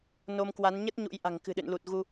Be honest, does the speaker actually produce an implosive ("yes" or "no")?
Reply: yes